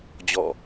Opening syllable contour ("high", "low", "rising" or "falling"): falling